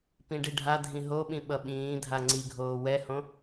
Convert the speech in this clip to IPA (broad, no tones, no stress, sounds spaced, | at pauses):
p ĩ ɖ i ɖʱ a dʱ ĩ ɦ o ɓ ĩ ɓ ʌ ɓ ĩː dʱ a ŋ͡ǀ i ɡʱ oː w ɛ h õ